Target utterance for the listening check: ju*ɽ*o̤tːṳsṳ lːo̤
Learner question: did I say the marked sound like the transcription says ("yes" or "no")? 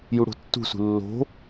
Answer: yes